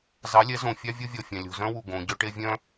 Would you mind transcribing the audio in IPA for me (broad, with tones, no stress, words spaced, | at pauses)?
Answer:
zɑ˨˦lʲɛ˨˦ zõ˨fʲɑ˦ vʲo˦vʲɔ˨fʲɑ̃˨ lʲo̤˨zœ̃˦wu˨ ɡõ˨˦ ɟœ˦ʈe˦vʲœ̃˦